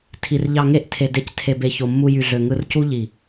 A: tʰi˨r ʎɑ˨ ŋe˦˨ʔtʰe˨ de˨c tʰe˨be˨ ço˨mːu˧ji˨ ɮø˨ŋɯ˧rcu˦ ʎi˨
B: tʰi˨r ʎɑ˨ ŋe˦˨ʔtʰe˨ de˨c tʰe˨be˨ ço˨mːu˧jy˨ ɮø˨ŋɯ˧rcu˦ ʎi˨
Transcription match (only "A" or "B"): B